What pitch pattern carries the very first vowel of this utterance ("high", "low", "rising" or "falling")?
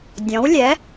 rising